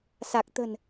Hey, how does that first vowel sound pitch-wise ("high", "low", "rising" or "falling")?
low